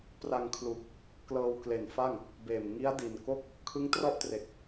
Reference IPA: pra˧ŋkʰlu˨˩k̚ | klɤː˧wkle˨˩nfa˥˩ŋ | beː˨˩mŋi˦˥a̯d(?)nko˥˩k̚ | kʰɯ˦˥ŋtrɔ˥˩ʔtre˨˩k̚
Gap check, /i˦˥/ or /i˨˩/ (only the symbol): i˨˩